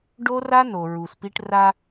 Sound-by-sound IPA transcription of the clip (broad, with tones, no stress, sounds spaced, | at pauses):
ɖ o˦ r a˦ n o˨ ɹ u˨ s p i˦ ʈ r a˦